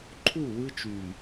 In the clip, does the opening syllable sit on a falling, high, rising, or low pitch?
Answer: falling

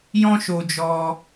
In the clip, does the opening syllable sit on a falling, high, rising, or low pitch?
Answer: high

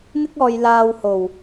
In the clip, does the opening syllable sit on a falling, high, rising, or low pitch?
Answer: high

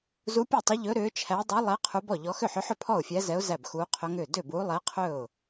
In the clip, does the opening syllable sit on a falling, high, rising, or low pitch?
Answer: rising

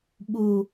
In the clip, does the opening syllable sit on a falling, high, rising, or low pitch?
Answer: high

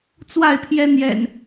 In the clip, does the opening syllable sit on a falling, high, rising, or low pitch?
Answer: falling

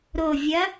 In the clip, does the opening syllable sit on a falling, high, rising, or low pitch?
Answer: low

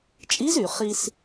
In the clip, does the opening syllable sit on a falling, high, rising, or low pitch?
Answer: rising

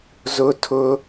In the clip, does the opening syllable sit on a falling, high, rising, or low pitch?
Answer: high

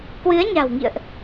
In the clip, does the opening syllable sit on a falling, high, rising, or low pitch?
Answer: rising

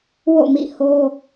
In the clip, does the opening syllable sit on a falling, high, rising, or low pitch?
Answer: falling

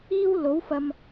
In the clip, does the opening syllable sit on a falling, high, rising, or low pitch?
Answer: high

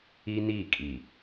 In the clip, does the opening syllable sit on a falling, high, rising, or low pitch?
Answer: high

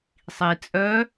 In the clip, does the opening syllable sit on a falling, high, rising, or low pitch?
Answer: low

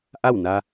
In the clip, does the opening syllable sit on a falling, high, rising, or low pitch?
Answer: falling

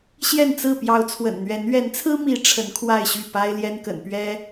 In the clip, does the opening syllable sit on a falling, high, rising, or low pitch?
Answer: falling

